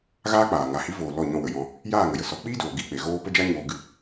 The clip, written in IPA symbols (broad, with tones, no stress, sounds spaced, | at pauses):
ɣ aː˦ k͡p aː˨ ŋ a˨ h i˨˦ v oː˨ l ɔ˦˨ ɲ ɔ̃˧ w ə˨ j ɔ̃˧ | j aː˦˨ ŋ ə˨ j ə˨ s ɔ˨˦ k͡p i˦ d oː˨ ɡ i˦˨ k͡p e˨ ɣ oː˦ p ə˦ d͡ʒ a˦ ɲ oː˧ ɡ ɨ˦˨